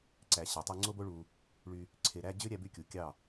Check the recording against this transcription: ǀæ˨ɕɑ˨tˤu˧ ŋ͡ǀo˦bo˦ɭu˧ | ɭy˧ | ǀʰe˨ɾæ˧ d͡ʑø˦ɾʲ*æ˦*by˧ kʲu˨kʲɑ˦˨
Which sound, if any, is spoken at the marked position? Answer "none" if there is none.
æ˧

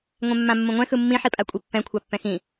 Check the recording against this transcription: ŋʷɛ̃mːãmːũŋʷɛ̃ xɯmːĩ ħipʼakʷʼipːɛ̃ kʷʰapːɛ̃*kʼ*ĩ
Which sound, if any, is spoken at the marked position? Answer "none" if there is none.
x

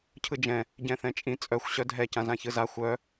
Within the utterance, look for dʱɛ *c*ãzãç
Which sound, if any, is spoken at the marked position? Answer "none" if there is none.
c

